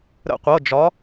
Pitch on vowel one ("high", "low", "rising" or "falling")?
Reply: falling